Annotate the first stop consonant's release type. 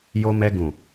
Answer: plain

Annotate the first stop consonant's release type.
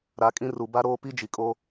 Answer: ejective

